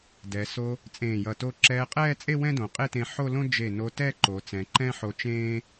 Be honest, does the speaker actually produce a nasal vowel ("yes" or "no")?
yes